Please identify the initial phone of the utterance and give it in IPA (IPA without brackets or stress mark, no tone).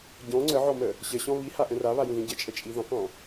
ɟ